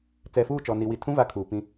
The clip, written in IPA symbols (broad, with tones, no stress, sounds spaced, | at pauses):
t͡s ɛ˨ f uː˦˨ t͡ʃ ɔ˨ n i˨ w i˨ tʰ ũ˦ v a˨ kʰ uː˨ p ĩ˦